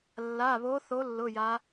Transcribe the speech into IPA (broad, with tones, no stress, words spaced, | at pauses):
lːa˩˧˩βo˨˦θo˨˦ lːʊ˩˧˩ja˨˦